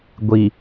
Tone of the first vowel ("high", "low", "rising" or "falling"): low